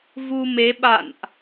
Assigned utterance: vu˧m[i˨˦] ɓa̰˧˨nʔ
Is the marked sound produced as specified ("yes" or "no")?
no